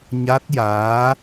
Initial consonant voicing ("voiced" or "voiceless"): voiced